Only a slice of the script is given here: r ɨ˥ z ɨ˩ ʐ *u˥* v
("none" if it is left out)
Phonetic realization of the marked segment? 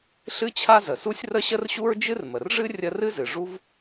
u˥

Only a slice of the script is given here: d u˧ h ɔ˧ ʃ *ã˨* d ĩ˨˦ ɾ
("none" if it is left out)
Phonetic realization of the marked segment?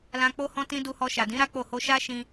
a˨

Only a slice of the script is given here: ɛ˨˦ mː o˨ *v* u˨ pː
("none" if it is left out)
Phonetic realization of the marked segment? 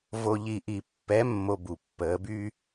b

